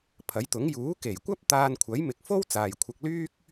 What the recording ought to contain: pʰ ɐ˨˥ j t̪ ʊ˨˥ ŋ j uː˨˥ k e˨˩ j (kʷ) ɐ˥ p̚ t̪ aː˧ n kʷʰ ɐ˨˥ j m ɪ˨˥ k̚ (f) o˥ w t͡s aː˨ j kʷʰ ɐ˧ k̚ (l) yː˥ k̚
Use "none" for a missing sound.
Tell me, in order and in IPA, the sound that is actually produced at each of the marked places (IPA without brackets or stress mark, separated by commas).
kʷ, f, l